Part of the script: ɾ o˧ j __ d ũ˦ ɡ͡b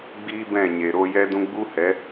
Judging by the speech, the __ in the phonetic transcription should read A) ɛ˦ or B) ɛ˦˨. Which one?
A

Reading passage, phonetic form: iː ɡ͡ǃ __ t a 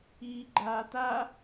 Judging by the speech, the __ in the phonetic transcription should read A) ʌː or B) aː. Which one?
B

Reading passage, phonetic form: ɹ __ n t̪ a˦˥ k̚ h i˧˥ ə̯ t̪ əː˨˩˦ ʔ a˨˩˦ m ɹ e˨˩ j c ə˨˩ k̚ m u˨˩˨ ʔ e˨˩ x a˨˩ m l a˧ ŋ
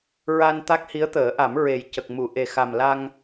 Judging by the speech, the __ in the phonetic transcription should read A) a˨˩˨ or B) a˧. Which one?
B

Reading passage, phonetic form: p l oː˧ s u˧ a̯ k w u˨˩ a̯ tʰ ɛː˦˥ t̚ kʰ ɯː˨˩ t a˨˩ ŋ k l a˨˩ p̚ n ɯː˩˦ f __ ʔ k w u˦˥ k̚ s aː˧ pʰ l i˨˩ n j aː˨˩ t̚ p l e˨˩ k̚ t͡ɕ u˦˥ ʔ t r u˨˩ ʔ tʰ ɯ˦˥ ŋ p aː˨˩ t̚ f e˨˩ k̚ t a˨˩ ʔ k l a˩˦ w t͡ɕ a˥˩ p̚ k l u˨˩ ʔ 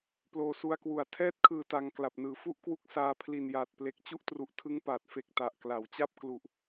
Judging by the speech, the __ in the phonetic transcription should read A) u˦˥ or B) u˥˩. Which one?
B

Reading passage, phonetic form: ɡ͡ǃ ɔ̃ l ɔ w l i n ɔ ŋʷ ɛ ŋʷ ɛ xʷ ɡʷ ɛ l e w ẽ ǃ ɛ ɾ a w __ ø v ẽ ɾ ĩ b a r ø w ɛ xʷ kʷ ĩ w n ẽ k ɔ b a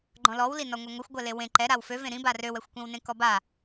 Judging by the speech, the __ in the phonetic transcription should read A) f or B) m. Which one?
A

